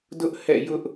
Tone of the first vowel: high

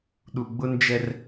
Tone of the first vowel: low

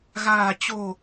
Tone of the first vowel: low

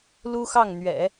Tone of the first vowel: high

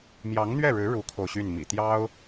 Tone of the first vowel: rising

